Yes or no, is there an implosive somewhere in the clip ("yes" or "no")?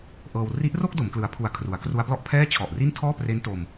no